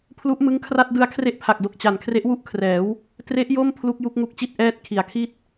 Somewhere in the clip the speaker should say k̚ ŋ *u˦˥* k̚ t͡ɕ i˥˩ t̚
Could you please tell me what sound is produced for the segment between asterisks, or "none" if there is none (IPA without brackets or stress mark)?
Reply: u˦˥